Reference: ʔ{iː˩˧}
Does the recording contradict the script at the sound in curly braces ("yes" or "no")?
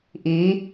no